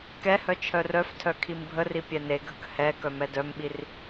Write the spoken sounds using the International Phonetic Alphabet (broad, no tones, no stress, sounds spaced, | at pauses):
k ɛ h œ t͡ʃʰ œ r œ f tʰ œ kʰ i m bʱ ə r i pʲ ɛ n e ɡʱ ə k h ɛ k œ m ɛ d œ m ɓ i r